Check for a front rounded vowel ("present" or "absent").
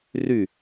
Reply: present